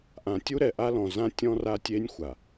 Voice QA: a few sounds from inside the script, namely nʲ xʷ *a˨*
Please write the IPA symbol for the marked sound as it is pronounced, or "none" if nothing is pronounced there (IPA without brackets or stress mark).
a˨